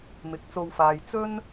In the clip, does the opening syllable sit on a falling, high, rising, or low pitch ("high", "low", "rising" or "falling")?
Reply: rising